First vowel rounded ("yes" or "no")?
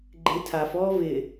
no